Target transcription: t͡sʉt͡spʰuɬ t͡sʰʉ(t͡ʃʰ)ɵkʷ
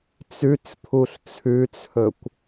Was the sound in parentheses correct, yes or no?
no